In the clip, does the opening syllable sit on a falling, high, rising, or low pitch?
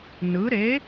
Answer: rising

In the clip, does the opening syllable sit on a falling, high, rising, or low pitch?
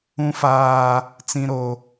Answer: high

